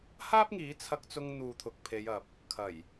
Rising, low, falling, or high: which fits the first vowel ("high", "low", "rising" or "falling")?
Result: high